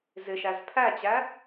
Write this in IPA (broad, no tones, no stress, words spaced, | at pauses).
zɪʃæz pʰæt͡ɕæ